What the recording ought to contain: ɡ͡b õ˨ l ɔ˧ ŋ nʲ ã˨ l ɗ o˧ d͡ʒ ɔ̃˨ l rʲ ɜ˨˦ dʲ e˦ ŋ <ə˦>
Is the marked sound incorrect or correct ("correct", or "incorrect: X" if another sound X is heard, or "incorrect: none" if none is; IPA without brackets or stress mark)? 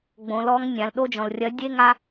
incorrect: a˦